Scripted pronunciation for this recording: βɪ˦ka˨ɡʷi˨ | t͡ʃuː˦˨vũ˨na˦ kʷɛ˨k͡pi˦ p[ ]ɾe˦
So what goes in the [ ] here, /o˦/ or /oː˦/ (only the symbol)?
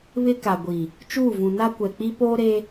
oː˦